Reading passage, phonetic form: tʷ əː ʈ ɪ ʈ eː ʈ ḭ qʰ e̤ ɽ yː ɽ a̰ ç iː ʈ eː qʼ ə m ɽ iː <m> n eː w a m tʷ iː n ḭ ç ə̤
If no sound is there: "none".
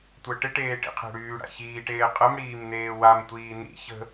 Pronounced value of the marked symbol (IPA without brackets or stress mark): m